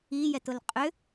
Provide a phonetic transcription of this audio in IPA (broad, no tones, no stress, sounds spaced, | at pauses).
i j ɛ t ʊ l qʼ ʏ